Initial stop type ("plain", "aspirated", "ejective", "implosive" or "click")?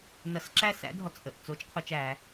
click